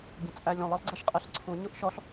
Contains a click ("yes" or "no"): yes